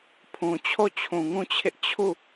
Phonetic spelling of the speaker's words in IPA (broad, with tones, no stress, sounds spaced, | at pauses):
pʰ ũ˨ t͡ɕʰ o˦˨ t͡ɕʰ ũ˨ ŋ ũ˦˨ t͡ɕʰ ɪ˦ ʔ t͡ɕʰ u˦˨